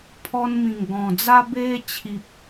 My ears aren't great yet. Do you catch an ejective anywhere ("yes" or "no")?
no